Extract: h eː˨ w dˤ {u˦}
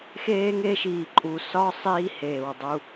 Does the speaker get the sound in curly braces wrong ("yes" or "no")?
no